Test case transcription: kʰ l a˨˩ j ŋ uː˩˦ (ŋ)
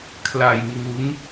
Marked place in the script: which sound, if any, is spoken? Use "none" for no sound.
ŋ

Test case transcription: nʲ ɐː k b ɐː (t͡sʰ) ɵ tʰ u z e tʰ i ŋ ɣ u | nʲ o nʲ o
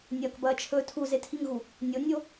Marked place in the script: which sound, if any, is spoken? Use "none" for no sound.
t͡ʃʰ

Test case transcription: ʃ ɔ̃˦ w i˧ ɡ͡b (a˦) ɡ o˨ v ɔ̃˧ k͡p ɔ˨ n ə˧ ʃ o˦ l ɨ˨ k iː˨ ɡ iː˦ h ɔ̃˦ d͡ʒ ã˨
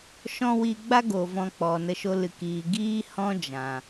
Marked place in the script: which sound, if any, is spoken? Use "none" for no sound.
a˦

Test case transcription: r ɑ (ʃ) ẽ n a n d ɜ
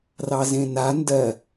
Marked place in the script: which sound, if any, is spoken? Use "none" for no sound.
z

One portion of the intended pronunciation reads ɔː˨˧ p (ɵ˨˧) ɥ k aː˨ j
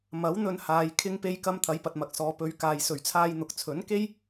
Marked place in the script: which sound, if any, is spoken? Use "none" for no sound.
ɵ˨˧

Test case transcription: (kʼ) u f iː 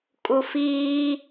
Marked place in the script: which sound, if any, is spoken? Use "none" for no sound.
kʼ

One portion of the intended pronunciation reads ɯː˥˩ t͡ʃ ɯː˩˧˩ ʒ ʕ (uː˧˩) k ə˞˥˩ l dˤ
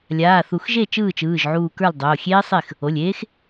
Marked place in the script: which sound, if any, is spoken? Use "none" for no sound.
uː˧˩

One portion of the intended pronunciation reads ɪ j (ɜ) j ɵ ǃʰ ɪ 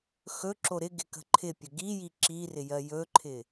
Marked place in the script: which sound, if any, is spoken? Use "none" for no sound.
ɜ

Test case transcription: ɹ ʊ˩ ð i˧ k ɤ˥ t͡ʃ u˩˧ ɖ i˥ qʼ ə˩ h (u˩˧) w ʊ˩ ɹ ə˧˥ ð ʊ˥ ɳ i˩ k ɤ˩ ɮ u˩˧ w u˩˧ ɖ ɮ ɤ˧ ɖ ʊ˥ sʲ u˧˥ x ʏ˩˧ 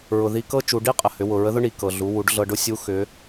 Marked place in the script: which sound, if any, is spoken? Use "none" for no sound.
ʏ˩˧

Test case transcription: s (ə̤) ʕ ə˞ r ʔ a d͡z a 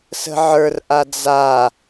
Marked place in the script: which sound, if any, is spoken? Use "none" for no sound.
ə̤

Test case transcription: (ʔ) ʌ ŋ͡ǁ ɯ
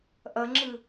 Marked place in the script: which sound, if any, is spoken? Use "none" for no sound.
ʔ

